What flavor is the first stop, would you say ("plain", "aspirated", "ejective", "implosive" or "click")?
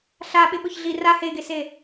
implosive